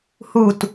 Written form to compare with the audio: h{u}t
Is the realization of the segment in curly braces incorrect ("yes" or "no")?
no